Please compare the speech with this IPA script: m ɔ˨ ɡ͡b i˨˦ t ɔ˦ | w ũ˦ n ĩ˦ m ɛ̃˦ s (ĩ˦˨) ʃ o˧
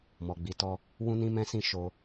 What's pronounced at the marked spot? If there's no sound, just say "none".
ĩ˦˨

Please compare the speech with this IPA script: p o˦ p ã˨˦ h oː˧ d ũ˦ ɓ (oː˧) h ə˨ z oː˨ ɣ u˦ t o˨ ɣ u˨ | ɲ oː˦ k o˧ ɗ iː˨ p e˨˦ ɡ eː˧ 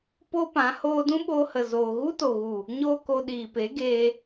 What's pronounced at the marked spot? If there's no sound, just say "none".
oː˧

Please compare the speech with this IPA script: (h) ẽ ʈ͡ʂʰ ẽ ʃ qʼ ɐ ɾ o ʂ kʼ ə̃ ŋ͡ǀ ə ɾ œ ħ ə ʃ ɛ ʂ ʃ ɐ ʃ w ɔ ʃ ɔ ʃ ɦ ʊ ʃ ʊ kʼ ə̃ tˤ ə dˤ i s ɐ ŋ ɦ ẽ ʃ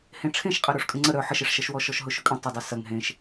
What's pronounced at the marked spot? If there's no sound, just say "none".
h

